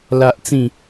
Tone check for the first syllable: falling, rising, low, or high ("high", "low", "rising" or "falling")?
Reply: high